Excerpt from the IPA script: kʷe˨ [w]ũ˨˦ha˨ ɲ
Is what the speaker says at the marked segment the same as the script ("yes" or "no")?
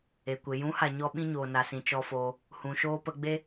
no